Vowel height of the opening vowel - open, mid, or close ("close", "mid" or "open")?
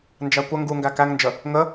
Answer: open